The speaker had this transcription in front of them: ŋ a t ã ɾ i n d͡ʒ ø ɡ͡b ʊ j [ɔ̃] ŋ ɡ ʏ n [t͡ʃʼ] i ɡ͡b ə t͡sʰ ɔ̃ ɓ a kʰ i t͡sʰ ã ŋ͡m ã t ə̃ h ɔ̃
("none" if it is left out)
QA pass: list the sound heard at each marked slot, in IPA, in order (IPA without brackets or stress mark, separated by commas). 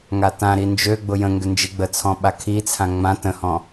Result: ə̃, d͡ʒ